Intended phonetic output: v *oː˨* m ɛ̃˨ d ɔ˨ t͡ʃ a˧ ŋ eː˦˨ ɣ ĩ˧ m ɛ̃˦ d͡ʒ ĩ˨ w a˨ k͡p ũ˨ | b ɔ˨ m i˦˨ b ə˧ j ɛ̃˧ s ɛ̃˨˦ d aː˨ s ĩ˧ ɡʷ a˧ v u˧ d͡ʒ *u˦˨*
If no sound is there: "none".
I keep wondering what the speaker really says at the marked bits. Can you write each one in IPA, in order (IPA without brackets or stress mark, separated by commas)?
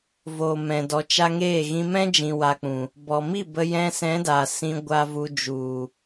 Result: oː˨, u˨